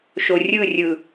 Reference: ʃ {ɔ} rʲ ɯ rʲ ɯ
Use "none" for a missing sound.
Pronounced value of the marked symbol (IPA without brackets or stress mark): o